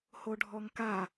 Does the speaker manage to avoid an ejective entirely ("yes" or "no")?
yes